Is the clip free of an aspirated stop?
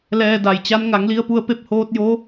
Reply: yes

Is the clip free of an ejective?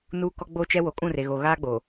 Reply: no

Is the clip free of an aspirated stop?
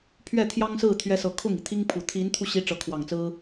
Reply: no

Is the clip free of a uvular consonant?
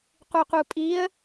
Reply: no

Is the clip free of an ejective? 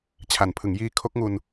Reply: yes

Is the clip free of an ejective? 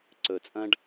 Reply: no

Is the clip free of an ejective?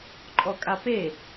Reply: no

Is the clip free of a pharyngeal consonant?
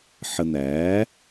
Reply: no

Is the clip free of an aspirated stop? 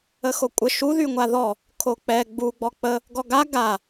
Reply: no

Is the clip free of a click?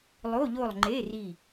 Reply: no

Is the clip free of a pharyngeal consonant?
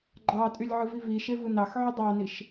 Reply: no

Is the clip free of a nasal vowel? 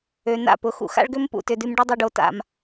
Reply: yes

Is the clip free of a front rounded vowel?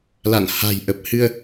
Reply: yes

